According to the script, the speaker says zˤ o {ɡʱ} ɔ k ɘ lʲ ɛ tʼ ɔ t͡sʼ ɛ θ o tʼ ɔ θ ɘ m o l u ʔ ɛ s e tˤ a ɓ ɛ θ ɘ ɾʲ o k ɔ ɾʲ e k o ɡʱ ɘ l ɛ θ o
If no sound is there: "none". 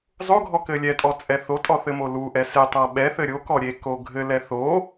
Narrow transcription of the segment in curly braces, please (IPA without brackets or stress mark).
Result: ɡʱ